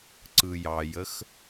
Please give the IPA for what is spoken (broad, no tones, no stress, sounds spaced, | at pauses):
ǀ ɯ j ɑ j ə x